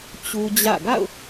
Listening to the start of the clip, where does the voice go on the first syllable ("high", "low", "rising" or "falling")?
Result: high